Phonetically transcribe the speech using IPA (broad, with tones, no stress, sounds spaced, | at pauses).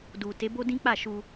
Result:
d u˨ t e˨˦ b o˦ d ĩ˦ k͡p a˦˨ ʃ u˧